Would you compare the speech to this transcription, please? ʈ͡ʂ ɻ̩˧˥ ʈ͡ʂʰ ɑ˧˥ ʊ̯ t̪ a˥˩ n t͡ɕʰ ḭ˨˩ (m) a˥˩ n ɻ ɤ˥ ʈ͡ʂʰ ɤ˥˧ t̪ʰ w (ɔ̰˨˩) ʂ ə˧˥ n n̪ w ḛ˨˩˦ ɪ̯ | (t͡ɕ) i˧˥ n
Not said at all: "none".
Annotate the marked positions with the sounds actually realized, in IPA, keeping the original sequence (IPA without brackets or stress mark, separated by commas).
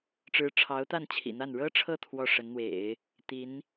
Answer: n̪, ɔ˥˩, t̪